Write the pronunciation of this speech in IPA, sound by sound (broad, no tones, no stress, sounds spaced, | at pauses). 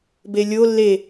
b e lʲ o lː e